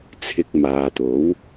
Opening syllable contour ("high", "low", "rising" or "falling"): low